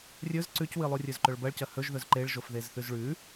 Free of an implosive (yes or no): yes